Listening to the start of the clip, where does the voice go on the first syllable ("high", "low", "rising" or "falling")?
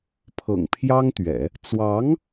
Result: low